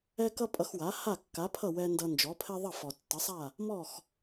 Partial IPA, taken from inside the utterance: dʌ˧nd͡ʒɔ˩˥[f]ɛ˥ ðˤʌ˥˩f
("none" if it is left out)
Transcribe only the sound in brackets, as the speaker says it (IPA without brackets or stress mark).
pʰ